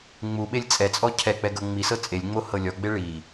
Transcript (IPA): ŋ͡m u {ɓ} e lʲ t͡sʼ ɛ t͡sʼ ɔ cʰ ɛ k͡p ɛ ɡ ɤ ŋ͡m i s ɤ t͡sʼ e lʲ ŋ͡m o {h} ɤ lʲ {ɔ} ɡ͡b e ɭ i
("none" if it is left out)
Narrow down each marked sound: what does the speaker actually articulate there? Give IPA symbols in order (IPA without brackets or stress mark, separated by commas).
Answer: ɓ, h, ɔ